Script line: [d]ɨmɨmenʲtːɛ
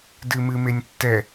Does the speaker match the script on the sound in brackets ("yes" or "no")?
yes